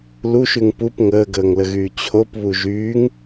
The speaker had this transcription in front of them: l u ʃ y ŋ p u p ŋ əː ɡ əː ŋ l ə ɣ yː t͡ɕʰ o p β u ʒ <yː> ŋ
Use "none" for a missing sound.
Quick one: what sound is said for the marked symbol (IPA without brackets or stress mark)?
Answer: yː